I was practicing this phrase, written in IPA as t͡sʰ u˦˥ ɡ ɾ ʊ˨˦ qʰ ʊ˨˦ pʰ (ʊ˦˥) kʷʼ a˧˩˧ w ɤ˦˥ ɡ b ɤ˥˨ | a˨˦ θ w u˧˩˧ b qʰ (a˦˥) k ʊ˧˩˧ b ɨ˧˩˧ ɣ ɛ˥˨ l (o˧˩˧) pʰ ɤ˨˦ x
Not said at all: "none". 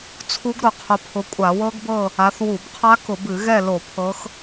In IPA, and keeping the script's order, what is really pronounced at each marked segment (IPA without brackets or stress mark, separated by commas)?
ʊ˨˦, a˦˥, o˧˩˧